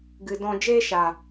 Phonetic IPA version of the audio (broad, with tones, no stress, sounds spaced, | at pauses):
ɡ ɨ˨ d ɔ̃˧ d͡ʒ eː˦ ʃ a˨